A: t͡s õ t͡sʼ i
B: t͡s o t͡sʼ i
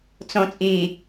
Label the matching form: A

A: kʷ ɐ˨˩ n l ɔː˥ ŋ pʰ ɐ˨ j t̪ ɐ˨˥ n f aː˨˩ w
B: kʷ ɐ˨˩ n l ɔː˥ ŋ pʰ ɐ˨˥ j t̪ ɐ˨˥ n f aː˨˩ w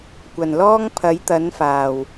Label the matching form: B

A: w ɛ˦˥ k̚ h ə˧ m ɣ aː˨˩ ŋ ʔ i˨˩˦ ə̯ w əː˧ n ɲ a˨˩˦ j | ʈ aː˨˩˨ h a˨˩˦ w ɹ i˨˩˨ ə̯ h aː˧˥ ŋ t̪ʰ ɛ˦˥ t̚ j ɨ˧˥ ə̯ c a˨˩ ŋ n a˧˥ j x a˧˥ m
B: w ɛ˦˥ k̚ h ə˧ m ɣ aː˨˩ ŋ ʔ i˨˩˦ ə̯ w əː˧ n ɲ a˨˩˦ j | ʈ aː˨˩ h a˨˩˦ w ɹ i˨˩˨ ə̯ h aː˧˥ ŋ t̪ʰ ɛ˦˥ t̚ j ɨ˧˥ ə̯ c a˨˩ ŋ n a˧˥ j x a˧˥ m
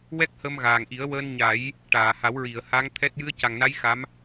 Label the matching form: A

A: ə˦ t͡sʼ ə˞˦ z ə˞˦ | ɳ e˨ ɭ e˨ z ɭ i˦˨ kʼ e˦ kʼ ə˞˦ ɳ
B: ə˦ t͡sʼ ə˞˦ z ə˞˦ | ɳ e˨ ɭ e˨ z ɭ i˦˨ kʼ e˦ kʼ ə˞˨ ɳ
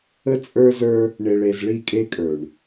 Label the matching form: B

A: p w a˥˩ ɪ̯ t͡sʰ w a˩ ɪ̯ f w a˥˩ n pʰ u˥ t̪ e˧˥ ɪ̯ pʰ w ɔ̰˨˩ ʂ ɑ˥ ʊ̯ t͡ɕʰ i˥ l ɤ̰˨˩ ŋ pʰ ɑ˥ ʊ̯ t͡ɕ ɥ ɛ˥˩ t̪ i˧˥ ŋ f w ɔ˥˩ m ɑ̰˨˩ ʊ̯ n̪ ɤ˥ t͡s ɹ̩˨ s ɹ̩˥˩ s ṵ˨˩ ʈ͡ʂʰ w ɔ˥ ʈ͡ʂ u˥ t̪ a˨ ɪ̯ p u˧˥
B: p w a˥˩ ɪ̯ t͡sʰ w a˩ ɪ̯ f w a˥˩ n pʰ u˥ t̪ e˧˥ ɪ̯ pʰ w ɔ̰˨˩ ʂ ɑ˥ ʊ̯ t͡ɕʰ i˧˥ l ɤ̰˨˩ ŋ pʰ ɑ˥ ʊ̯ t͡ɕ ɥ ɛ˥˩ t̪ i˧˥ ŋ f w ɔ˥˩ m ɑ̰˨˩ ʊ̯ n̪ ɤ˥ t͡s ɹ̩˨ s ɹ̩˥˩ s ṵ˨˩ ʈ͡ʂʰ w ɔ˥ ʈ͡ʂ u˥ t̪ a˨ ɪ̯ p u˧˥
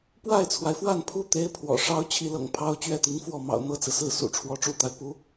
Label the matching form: B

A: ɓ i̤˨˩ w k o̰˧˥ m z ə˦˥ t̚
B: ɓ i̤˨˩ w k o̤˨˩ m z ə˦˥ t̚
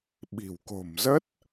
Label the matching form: B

